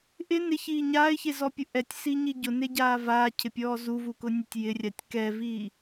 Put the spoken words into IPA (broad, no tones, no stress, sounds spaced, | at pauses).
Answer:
ʔ ɪ n ɪ ç iː ɲ aː ɪ̯ ç e z ɔ pʲ ʊ ʔ ɛ tʲ s iː ɲ i ɟ ʊ n e ɟ aː v aː cʰ ɪ pʲ ɔː z u v u k ʊ nʲ ʊ tʲ j ɪ rʲ a tʲ k ɛ v iː